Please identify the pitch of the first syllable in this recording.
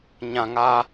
low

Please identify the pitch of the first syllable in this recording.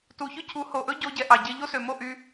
low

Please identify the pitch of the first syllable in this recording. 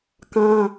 high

